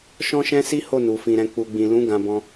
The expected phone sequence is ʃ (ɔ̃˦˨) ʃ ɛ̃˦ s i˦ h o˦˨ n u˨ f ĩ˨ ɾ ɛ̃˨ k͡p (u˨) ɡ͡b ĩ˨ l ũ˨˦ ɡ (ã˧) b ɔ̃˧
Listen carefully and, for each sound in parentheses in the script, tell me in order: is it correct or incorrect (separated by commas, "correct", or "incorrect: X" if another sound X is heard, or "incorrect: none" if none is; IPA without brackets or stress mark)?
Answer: incorrect: ɔ̃˦, correct, correct